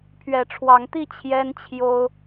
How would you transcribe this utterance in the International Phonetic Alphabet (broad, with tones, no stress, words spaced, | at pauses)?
pʰɥɛ˨˦ʈ͡ʂʰwɑ˨˦ŋt̪i˥˨ t͡ɕʰjɛ˦nt͡ɕʰjo˦ʊ̯